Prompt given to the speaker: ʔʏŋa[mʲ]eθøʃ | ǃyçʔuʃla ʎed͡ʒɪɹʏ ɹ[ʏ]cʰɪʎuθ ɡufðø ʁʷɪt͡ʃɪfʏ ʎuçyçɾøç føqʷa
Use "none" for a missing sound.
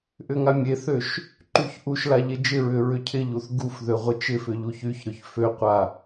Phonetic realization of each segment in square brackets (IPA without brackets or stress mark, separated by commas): mʲ, ʏ